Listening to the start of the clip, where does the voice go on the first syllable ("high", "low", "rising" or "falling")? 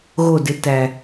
falling